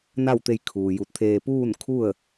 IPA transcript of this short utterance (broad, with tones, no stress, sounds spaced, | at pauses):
n a˥˨ w t̪ e˧ j kʰ uː˩ j u˧˩ t̚ t̪ʰ eː˧ p uː˥˨ n kʰ u˥˨ ə̯